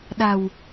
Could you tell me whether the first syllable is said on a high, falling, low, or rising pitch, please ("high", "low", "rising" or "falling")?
low